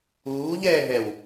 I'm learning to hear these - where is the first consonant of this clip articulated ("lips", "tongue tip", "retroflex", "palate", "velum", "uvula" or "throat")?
palate